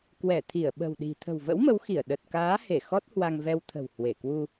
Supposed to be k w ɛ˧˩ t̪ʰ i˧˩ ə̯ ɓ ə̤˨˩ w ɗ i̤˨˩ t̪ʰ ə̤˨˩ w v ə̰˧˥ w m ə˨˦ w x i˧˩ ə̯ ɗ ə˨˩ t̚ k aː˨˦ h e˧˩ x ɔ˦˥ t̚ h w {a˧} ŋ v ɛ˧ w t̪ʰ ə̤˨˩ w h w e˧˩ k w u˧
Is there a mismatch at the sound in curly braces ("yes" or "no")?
no